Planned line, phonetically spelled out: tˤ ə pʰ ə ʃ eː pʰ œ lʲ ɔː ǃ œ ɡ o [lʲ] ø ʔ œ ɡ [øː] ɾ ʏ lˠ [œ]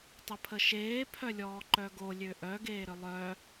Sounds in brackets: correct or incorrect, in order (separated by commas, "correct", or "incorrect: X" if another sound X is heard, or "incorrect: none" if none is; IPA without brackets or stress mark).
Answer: correct, incorrect: eː, correct